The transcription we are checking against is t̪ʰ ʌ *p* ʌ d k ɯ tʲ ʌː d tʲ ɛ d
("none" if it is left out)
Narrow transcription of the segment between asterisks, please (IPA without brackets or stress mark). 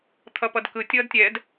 p